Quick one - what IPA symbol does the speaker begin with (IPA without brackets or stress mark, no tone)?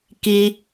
k